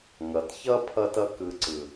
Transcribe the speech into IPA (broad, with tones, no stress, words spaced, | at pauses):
ŋʌ˨˦tçʌ˦ pʰʌ˧tʌ˧kɯ˨ ǀɯ˨